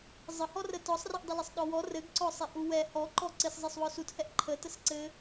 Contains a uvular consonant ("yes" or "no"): no